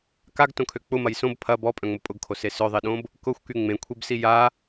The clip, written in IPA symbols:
k a ɡ t õ kʰ ø k͡p ʊ m ɐ j s õ b pʰ ɐ b ɔ pʼ œ̃ ŋ͡m ʊ pʼ ʊ ɡ kʰ o s e s œ ðˤ i ɗ õ b | k ʊ xʷ k y ŋ͡m ẽ kʷʰ i b s i j a

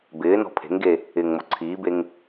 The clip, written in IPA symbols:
b ɪː n ɔ̤ pʰ e̤ ŋ ɡ e | ɪː ŋ m o ǀʰ iː b e ŋ

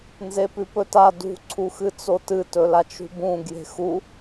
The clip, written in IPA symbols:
n z e p ʉ p ɵ t a d ṳ ǀʰ u x ɨ t͡s o t ɨ t ɵ l a t͡ʃ ṳ b ũ ɡ j e̤ x u

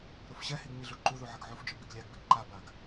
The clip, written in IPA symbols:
ɾ o f ɕ ɛ h i ɡ ɲ i ɮ u ǃ u ð u ʕ ə ɡ ʕ u f d͡ʒ ø b i ɡ lʲ a ɡ b i ɡ ǃ a b a ɡ

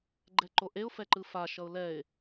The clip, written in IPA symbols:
ɡ͡ǃ ɛ ǃ o ʔ e ʊ̯ f ɛ ǃ ɯ f a ʃ ʌ ʊ̯ l ɛ ɪ̯

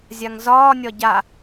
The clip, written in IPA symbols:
zʲ a ŋ z ɒː nʲ ɒ ɟ a

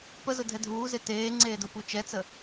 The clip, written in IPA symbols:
p ə z ʊ dʱ ɛ dʱ uː z e t eː ŋ͡ǀ eː d ʊ p u t͡ʃ ɛ t͡s ə

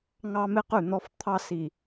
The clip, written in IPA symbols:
ŋ ɑ˦ m ɪ˦ q ʉ˦˨ n̪ ɔ˦ f t̪ʰ ɑ˦ s i˨

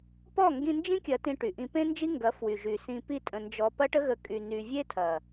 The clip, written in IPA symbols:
p ɔ˦˨ ŋ ɡ ĩ˧ n d͡ʒ ĩ˦ kʲ ɐ˧ t ĩ˧ ʈ y˨ ʔ ĩ˧ p ẽ˦ n d͡ʒ i˦ ŋ ɡ ɐ˨˦ f w y˨ ʒ y˨ s ĩ˧ p i˦ tʼ ə̃˧ n d͡ʒ ɔ˧ p ɐ˦ ʈ ə˦ ɣ ə˧ kʼ y˧ n y˧ vʲ e˦ tʰ ɐ˨

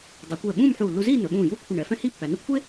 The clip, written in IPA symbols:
dˤ u˩˧ kʷ ɛː˧˩ ɓ ũː˥˧ m ħ uː˧˩ lː u˧ z iː˥˧ n ɵ˩˧ ɓ ũː˧˩ j uː˥ kʷʰ ə˧˩ ɳ ɛ˩˧ f ɛ̃˥ h iː˥ pː æ˩˧ n ə˥˧ kʷʰ e˥

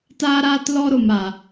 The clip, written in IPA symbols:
t aː˦ ɾ aː˦ t l ɔ˦ ɾ o˦ m a˦

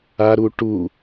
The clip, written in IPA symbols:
a ɾ u ʈ u

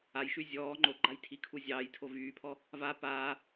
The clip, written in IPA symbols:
a j ʃ y zʲ ɔː ŋ͡ǃ o ɡ͡ǃ a j tʰ i kʰ u zʲ ɑː j tʰ o v yː pʰ ɔ | v a p aː

